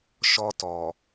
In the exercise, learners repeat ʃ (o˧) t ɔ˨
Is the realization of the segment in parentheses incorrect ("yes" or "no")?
yes